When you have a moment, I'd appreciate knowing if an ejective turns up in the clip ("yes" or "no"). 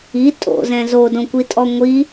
yes